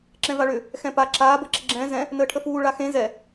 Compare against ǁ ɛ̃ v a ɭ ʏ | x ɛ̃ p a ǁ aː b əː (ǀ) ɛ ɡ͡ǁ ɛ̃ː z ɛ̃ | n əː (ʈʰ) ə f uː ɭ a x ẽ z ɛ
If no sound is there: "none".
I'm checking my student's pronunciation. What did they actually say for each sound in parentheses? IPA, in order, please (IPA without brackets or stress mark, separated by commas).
ǁ, ʈʰ